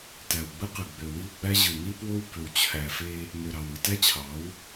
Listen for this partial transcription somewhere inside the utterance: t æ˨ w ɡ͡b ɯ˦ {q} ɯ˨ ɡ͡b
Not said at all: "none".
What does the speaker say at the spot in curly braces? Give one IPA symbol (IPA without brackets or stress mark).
q